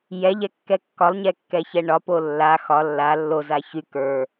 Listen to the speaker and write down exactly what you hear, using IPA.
j ɛ ʎ ɛ kː ɛ kː ɒ lˠ ɲ ɛ kː ɛ ç ɛ ɳ ɒ p o lː a x ɒ lː a lː o z a ç y k ə˞

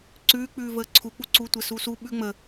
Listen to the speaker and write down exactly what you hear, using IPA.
ǀ ʉː k͡p ʉː v əː ǀʰ u k͡p u ǀ u tʷ ɛ s u s u ɓ ʉ ŋ͡m ə

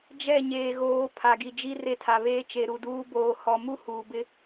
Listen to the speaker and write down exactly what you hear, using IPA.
d͡ʒ ɛ˦˨ ɲ eː˨ ɣ oː˨˦ pʰ a˨ ɡ i˨ d͡ʒ i˦ r e˦ tʰ a˨ β eː˦ t͡ʃ e˨ ɾ u˨ d uː˦ b oː˨ h ɔ˨ m u˦ h uː˨ b ɪ˦

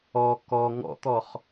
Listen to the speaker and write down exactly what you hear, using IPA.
ɔ k ɔ ŋ ɔ̰ t̪ ɔ χ

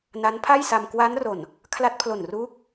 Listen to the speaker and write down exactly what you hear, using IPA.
n a˦˥ n pʰ a˥˩ j s a˧ m k w a˦˥ n r o˨˩ n | kʰ l a˦˥ t̚ pʰ l o˨˩ n r uː˦˥ k̚

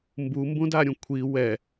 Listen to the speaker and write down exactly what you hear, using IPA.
m b u m b ũ d a ɾʲ ũ kʷʰ i w ɛ

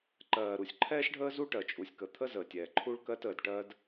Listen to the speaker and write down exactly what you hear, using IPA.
ǃ ɜː˩ ɾ u˩ sʲ ǃʰ ɛː˥ ʃ ɖʱ əː˥ z u˥ ʈ ɜ˩ t͡ʃʼ u˩ sʲ k ə˩ t̪ʰ ə˥ z əː˩ tʲ ɛː˩ ǃʰ u˥ ɭ k ɜ˥ t əː˩ d ʈ ɜ˥ d

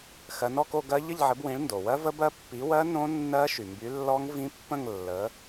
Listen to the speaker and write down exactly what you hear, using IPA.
x ɜ˨˦ n ɔ˥˧ k o˥˧ ɡ ɜ˦˥ ʎ ə˥˧ ʎ ʕ ɘ˨˦ b w ĩ˨˦ ɭ n d o˩ w ɜ˦˥ v ə˦˥ b ɜ˦˥ pː i˨˦ w ɜ˦˥ n õ˦˥ nː ɜ˦˥ ʃ y˩ m b y˨˦ lː ɔ˦˥ ŋ v ĩ˦˥ pː ə̃˥˧ ŋ lː ə˨˦

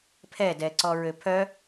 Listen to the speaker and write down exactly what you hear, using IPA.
pʰ ɛ d ɛ ǀ ɔ ɹ ø pʰ œ

